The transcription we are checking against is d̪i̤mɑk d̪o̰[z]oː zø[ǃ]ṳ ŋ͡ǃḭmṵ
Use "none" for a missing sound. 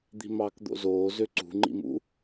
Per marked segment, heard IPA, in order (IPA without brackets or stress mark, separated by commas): z, ǀ